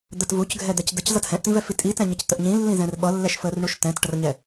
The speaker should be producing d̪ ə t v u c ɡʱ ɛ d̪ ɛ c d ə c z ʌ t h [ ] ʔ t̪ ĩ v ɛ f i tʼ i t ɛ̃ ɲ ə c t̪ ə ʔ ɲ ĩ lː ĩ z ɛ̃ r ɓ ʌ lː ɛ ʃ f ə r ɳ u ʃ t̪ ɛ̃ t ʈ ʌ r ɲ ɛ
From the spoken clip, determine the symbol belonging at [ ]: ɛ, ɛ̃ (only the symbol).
ɛ̃